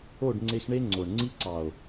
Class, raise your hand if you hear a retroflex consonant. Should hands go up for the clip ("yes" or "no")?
yes